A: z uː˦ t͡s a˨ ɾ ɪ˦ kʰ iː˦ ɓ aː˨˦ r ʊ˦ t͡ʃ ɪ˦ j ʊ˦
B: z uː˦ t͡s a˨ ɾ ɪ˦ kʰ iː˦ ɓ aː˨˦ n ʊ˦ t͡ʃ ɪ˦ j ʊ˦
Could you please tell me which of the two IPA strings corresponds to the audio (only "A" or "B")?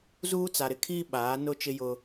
B